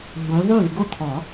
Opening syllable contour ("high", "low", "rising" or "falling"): rising